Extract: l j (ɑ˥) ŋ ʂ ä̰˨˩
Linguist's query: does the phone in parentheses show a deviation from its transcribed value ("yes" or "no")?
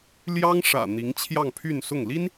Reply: no